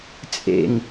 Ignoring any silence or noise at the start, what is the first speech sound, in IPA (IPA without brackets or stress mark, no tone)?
t͡sʼ